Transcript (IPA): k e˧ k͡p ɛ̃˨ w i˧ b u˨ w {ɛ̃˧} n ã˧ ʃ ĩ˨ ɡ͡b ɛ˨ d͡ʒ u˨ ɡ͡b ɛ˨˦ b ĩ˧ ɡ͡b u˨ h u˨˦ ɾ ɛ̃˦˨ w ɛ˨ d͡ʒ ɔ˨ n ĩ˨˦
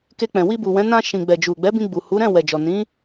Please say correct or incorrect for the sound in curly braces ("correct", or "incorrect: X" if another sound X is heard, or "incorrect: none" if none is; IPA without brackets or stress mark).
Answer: incorrect: ɛ̃˨˦